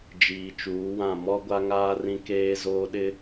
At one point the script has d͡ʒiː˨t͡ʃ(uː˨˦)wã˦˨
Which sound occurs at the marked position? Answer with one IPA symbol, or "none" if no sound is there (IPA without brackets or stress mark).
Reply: uː˨˦